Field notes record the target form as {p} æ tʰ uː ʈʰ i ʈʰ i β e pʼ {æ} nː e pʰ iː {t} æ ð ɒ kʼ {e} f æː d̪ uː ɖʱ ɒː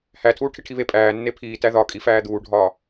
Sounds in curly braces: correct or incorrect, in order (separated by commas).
incorrect, incorrect, correct, incorrect